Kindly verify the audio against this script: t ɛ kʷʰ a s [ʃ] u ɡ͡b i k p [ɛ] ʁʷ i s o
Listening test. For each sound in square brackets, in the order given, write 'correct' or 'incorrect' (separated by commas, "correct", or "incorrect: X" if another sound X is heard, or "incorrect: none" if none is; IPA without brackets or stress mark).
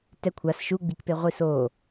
correct, incorrect: e